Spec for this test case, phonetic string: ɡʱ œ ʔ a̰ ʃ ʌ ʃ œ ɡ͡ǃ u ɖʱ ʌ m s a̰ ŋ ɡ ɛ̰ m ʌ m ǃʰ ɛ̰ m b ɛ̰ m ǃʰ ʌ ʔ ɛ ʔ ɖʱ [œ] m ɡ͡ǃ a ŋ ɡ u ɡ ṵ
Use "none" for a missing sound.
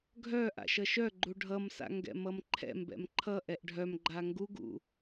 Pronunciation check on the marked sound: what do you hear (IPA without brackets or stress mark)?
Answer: œ